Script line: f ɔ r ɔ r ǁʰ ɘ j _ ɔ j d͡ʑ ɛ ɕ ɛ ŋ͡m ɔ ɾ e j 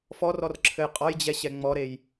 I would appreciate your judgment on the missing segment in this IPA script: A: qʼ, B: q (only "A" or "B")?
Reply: A